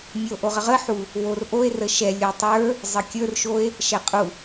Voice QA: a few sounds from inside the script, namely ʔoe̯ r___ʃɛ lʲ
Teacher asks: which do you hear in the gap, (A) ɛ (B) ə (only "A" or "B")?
B